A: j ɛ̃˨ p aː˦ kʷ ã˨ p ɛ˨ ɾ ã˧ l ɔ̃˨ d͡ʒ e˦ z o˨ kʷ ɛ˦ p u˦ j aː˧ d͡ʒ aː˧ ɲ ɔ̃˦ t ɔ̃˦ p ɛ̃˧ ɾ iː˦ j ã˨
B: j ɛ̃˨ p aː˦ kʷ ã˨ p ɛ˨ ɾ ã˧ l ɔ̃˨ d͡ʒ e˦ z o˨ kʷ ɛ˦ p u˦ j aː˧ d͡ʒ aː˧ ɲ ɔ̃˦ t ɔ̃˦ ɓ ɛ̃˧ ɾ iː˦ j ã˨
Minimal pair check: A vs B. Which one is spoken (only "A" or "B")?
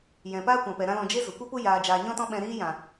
B